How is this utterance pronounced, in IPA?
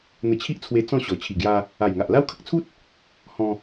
n̪ ə˧ t͡ɕʰ i˦ ʔ t͡sʰ w e˧ t͡s ɔ̃˥˧ ɕ ɔ˨˩ t͡ɕʰ i˨˩ ɡ j a˧ | a˨˩ j ŋ a˨ ʔ l a˦ w kʰ ə˦ k̚ t͡sʰ u˦ t̚ | h ɔ̃˧

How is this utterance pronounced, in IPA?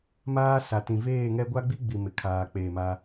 m aː˦ s a˨ t ĩ˨ v eː˦˨ ŋ ɛ˦ ɡʷ a˦ ɡ͡b i˦ ɡ͡b i˨ m ɪ˨ kʰ aː˨ k͡p eː˨ m a˦

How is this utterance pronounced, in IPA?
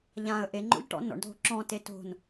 ʎ ã ə̯ ʔ e ŋ͡ǃ o̰ ʎ ʈ ɔ̰ n ɔ̰ ɳ dʱ o̤ ǁ ɔ̃ t e t o̤ n

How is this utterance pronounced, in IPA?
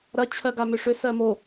ɾ ɐ t͡ɕʰ ɜ ɡ a m ʏ ʂ ʏ s ɜ m o

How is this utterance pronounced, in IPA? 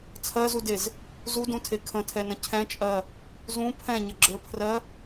t͡sʰ ɜ z u d e z | z u d ũ tʰ e kʰ ə̃ tʰ ɛ n ə̃ cʰ ɛ̃ t͡ʃʼ ɜ | z ũ pʰ ɛ̃ ɲ ə ɡ͡ǁ ə˞ pʰ r ɜ

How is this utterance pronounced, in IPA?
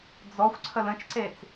d͡z ɔ xʷ ǀʰ ə l ə̃ t͡ʃ ǀ e t͡s

